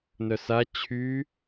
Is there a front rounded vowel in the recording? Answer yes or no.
yes